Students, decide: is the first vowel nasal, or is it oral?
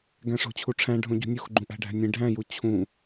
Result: nasal